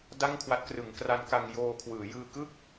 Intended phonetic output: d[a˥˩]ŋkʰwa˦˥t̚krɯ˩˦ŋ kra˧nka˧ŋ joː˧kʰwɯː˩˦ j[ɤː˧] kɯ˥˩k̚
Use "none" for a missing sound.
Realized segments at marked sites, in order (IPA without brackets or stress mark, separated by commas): a˥˩, ɯː˧